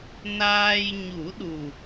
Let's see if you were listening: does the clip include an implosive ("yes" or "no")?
yes